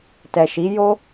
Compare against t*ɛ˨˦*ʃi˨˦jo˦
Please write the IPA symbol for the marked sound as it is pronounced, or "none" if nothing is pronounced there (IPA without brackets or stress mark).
ɛ˨